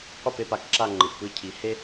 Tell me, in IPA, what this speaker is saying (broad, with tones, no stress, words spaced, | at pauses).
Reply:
qʷi˦˨pe˦pa˨kǁa˦˨ ŋ͡ǃɯ˨ʔpɯ˦cʰi˨ he˦